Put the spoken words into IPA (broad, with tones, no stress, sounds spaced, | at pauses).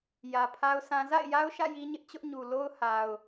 j ä˨ pʰ a˦ ʊ̯ s ã˦ z a̰˦˨ ɪ̯ j a˦ ʊ̯ ʃ ä̰˦˨ j i˦ ɲ ɪ˦ ʔ t͡ɕ ʊ˦ ʔ ɲ u˨ l o˦ ʊ̯ h a˨ ʊ̯